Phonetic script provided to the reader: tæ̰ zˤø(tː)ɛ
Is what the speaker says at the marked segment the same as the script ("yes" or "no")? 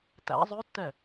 yes